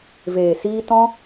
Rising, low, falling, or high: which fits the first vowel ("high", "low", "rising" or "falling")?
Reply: low